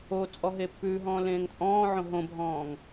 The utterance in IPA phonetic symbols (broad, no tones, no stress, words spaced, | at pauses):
o t͡sʼɔɦepːʉːɦɔ̃ː lẽːŋt͡sʼɔ̃ːʕõ ɦõbʱɔ̃ːŋ